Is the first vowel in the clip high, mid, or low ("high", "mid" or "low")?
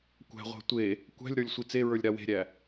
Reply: low